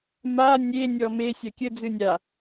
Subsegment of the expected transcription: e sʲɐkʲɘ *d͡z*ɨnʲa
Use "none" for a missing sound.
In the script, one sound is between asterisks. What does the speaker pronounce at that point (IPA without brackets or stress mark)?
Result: d͡z